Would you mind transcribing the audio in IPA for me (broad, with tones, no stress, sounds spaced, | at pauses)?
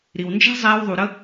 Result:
ɾ i˨ w n d͡ʒ æ̤˦ zˤ ɛː˧ w ðˤ u˨ ɾ ə˦